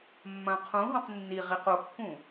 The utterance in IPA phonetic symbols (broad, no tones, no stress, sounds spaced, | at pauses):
mː ɐ̃ qʰ ũ ɦ õ q nː i ʁ i q o kː ũ